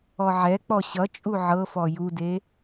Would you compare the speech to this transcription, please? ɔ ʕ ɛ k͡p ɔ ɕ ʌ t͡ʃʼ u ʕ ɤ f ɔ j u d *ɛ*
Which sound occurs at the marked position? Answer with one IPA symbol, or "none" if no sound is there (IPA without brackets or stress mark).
e